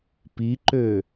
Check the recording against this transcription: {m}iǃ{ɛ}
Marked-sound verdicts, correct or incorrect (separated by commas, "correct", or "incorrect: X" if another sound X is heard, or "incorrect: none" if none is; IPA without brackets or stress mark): incorrect: p, incorrect: ø